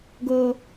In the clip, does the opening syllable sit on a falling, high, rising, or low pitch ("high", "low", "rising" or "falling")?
high